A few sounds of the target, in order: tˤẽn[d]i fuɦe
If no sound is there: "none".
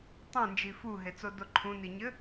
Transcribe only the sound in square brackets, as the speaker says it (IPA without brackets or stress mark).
d͡ʒ